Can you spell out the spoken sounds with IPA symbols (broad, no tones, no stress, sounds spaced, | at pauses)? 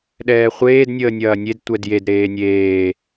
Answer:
ɗ ɛː χʷ eː d nʲ əː nʲ ɐː nʲ e d tʷ ɛ d j e d ɾ eː nʲ eː